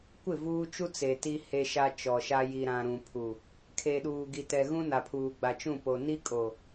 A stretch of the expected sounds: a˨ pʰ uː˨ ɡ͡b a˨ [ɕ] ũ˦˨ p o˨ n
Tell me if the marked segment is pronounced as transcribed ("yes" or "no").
no